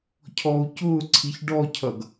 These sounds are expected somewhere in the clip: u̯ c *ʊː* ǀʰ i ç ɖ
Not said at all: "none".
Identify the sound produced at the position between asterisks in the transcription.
ʊː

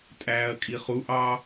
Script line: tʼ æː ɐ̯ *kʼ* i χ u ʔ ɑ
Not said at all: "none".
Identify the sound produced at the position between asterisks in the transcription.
kʼ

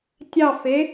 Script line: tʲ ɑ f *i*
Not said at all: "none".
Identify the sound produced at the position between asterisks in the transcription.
e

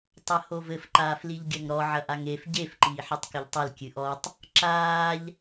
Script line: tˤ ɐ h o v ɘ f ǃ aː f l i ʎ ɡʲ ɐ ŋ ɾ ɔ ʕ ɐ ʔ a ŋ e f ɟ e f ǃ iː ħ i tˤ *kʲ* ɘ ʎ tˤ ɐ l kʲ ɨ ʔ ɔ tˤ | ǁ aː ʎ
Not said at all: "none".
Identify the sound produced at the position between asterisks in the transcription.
k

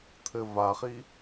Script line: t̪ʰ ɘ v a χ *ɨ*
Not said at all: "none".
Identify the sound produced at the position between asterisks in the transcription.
i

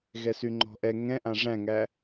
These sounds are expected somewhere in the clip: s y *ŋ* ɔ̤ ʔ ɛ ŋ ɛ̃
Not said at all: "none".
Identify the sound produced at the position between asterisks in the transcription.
ŋ͡ǃ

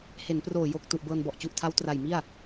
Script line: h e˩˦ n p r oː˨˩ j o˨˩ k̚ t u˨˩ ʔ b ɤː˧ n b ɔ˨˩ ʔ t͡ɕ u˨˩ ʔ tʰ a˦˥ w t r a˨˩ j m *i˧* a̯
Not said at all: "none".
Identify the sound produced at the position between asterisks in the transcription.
i˥˩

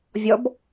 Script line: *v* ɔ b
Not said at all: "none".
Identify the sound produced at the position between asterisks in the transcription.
vʲ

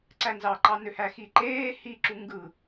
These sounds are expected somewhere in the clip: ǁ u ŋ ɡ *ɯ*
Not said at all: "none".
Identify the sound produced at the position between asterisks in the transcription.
ɯ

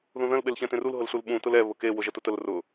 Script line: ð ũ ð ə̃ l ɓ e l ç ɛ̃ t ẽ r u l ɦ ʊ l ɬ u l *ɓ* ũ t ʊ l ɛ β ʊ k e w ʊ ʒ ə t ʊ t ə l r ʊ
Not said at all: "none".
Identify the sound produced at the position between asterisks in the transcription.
ɓ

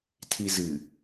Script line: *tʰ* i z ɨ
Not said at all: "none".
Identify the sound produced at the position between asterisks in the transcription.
tʰ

